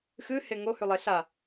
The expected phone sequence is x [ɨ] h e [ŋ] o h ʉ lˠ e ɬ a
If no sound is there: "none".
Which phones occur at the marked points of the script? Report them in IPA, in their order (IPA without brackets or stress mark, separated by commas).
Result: ɨ, ŋ